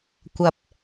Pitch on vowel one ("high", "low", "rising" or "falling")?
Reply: low